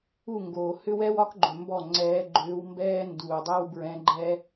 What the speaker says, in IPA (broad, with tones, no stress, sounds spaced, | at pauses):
u˥˩ ŋ ɡ oː˨ h ʏ˥ w ɛ˥ w ɒ˥ k ɡ͡ǃ ʏ˨ m b ɔ˥˩ ŋ͡ǀ ɛː˧˥ ɡ͡ǃ ʏː˧˥ w m b ɛː˥ n d uː˨ dˤ ɛ˥ w b ɹ ɛ̃˧˥ ɡ͡ǃ ɛ˥